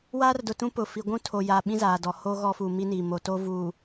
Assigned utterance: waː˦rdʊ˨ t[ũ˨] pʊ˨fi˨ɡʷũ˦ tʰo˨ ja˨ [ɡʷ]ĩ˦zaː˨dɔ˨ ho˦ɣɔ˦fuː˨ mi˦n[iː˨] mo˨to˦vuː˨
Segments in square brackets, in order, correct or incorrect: incorrect: ũ˦, incorrect: ɓ, correct

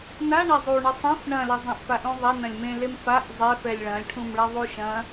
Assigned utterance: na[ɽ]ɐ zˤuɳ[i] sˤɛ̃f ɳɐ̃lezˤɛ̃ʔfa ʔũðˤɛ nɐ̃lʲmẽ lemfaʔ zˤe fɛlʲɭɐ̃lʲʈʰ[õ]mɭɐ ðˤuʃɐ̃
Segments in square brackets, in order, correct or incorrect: incorrect: ɳ, incorrect: ɨ, incorrect: ũ

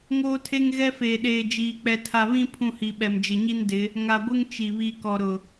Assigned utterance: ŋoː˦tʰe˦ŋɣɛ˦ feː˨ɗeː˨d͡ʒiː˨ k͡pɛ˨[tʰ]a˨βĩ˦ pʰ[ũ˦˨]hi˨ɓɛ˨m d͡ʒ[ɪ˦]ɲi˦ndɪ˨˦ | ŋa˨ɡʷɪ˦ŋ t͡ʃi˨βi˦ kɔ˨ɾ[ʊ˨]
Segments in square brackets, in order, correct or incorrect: correct, correct, incorrect: ɪ˨, correct

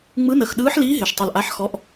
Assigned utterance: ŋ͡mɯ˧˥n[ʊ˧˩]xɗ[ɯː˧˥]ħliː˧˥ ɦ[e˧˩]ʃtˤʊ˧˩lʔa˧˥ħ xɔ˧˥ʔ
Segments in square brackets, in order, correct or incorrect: incorrect: ə˧˩, correct, correct

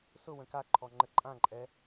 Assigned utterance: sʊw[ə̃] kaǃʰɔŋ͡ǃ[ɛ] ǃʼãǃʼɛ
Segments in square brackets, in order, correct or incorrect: correct, incorrect: ə

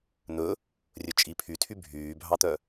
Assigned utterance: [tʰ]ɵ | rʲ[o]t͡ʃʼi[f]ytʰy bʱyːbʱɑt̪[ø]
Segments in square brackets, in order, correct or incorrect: incorrect: n̪, incorrect: ɵ, incorrect: pʰ, incorrect: œ

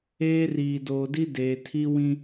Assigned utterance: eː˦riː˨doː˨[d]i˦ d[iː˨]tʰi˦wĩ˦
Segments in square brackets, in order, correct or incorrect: correct, incorrect: eː˨

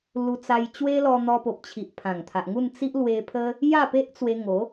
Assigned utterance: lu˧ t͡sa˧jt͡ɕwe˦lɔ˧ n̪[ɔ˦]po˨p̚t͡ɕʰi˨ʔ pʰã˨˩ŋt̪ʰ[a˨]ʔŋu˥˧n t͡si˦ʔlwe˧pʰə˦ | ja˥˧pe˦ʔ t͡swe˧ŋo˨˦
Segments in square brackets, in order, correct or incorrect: incorrect: ɔ˧, correct

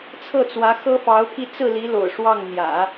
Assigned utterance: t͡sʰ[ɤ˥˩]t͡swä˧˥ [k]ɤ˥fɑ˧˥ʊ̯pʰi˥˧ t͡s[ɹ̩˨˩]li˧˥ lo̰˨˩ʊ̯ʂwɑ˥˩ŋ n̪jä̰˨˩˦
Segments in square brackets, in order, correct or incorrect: correct, incorrect: x, incorrect: ɹ̩˥˩

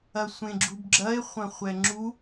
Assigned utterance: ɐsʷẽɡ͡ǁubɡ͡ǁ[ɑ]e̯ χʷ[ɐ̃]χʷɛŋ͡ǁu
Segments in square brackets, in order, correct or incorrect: incorrect: ɐ, correct

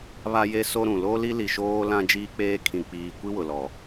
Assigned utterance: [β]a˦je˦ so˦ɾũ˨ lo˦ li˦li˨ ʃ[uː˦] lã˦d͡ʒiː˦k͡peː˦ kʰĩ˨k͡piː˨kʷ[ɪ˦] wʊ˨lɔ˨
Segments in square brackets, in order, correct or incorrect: correct, incorrect: oː˦, incorrect: i˦

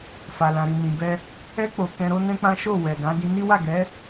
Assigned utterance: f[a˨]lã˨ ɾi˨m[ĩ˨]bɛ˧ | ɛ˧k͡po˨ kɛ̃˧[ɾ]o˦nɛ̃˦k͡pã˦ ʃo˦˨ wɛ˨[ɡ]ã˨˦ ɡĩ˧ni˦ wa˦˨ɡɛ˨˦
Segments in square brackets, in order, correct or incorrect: correct, correct, correct, correct

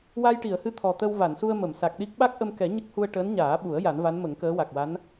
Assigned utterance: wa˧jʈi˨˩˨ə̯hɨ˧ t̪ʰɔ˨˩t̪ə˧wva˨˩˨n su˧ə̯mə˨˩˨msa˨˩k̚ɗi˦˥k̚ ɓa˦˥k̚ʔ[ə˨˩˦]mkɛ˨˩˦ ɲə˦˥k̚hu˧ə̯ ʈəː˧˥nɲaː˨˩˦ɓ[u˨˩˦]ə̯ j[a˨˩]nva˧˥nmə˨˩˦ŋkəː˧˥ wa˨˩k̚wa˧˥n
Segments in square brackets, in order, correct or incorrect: incorrect: ə˧, correct, incorrect: a˨˩˦

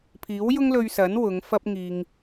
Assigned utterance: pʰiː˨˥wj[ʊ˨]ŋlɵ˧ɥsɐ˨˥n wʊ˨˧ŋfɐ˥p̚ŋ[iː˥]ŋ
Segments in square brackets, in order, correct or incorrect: incorrect: ʊ˥, incorrect: iː˧

